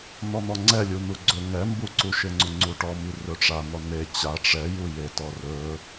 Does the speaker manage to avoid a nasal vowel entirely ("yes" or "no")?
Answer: yes